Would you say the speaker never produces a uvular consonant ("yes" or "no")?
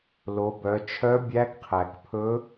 no